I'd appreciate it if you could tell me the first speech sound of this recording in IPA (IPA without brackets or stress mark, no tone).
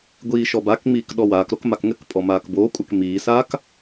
ɡʷ